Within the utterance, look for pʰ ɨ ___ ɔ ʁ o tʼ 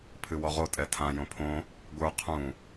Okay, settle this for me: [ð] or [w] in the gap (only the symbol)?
w